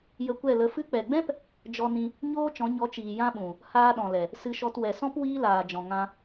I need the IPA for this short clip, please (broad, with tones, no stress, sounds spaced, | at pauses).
j ə˧ kʷ ɛ˦˨ l ə˧ f ɨ˧ k͡p ɛ˨ ɡ͡b ɛ̃˦ p | d͡ʒ ɔ˧ n ĩ˧ | ɲ oː˦ t͡ʃ ɔ̃˨˦ ɲ ɔ˨˦ t͡ʃ iː˨ j ã˦ ɓ ũ˨ | h aː˧ ɗ ɔ̃˨ l ɛ˨ | s ɨ˧ ʃ ɔ˧ t w ɛ˨ s ɔ̃˦ p w iː˦ l aː˨ d͡ʒ ɔ̃˨ ŋ ã˧